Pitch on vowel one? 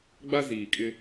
high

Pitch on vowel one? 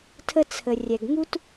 high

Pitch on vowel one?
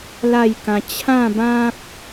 falling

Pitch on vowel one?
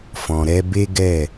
low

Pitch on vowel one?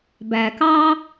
low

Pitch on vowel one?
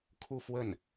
falling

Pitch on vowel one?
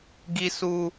high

